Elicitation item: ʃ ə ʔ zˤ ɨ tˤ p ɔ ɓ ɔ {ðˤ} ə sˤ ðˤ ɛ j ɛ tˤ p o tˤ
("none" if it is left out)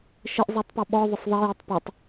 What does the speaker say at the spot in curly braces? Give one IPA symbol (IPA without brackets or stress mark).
ðˤ